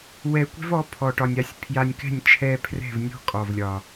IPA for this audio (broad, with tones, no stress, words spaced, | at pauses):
wɛ˧kʷɛ̤˦vɔ˨˦ pʰɔ˨ʈɒ˨nʲa˨˦sʲ pʰja˧nʲkɛ̤˦˨nʲ t͡ʃʰɛ˧ pʰrɛ̤˦˨vnʲɔ̤˦ kʼɒ˨vlʲɒ˨